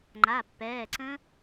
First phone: ŋ͡ǃ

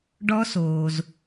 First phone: ɖ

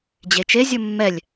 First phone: d͡ʑ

